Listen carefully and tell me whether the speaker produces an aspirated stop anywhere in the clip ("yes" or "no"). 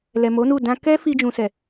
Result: no